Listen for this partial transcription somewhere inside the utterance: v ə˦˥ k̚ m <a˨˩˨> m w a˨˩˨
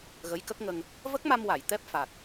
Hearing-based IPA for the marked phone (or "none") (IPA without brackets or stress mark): a˧